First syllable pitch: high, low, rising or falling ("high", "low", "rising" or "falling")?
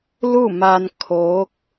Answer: falling